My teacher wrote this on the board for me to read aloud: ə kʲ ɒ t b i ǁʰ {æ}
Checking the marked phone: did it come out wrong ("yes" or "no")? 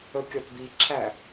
no